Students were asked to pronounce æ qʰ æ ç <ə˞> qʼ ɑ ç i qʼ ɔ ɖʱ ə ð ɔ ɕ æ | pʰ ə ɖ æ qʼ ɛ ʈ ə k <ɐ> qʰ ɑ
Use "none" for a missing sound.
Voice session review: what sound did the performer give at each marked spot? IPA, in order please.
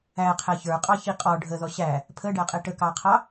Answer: ə˞, ɑ

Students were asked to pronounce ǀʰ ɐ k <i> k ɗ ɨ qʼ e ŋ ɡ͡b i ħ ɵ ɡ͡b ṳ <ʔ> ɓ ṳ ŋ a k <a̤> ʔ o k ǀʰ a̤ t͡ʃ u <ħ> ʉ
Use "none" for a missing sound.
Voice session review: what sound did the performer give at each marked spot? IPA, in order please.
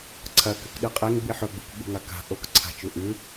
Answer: ɨ, k, a̤, ʔ

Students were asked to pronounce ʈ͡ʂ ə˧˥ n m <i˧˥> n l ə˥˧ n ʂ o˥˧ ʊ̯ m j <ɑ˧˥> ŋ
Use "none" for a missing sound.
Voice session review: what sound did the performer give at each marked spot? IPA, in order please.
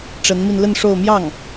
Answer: i˧, ɑ˥˩

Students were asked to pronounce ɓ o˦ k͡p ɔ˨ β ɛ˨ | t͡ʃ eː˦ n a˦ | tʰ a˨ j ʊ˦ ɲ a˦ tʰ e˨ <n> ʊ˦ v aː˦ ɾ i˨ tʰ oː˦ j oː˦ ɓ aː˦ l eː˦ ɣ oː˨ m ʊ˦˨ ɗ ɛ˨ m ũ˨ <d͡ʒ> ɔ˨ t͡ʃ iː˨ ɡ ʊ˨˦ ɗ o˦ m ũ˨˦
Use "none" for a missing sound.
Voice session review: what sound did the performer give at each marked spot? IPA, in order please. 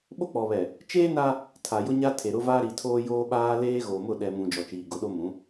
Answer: ɾ, d͡ʒ

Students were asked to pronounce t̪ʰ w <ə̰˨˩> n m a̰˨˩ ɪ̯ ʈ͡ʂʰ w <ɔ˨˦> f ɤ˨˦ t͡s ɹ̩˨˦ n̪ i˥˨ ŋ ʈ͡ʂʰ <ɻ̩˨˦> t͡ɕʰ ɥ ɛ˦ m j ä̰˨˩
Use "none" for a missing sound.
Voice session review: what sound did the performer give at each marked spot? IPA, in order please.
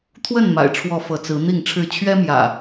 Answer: ə˥˨, ɔ˨˦, ɻ̩˥˨

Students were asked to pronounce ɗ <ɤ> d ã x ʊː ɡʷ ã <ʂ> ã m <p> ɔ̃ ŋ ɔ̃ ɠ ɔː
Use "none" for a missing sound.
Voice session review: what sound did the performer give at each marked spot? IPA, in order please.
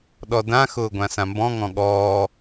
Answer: ɔ, s, b

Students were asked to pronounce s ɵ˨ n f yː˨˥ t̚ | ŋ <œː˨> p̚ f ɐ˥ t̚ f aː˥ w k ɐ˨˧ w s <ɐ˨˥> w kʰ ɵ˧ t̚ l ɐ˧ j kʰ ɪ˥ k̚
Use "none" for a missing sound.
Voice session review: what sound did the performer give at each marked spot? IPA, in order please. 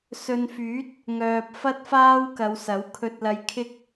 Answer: œː˨, ɐ˨˥

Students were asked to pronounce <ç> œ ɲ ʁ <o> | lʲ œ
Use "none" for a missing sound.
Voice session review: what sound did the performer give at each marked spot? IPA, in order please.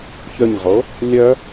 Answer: ç, o

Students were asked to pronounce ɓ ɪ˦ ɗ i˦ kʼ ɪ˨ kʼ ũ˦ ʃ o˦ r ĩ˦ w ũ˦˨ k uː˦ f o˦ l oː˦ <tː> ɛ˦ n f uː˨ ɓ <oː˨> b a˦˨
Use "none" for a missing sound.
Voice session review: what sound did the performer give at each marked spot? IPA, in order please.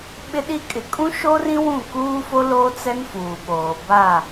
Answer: t͡s, oː˨

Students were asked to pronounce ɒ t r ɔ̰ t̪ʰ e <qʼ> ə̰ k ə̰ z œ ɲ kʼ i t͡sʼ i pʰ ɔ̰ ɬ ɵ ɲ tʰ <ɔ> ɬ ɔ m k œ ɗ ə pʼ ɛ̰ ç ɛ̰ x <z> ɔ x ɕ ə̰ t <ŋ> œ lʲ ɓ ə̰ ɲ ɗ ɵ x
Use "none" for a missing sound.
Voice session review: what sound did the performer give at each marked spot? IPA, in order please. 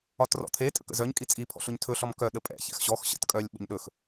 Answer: tʼ, ɵ, ɕ, kʼ

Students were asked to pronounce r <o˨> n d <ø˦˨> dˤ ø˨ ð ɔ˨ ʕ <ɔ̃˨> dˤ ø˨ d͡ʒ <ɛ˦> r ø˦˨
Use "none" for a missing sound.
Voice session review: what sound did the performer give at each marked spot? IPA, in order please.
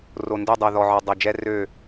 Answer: o˨, ø˦˨, ɔ˨, ɛ˦

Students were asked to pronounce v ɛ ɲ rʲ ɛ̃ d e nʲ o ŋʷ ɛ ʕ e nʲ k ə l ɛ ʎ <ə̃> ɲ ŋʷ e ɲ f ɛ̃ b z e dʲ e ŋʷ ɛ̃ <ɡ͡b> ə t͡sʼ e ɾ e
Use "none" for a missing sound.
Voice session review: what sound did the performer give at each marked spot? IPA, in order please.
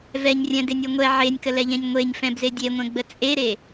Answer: ɛ̃, ɡ͡b

